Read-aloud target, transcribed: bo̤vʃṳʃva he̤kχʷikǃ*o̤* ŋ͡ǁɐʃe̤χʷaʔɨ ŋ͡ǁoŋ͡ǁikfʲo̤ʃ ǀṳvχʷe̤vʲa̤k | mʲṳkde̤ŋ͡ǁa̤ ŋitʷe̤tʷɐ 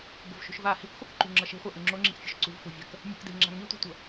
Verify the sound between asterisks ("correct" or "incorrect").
incorrect